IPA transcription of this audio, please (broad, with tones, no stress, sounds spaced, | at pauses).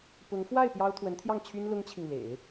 p ʊ˧˥ ŋ f w a˥˩ ɪ̯ p j ɑ˥ ʊ̯ t̪ʰ w ə˧˥ n t̪ʰ j ɑ˥˩ ŋ t͡ɕʰ y˥ n l ʊ˥ ŋ t͡ɕʰ i˨ ŋ l ḛ˨˩˦ ɪ̯